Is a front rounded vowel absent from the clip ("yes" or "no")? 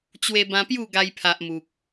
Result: yes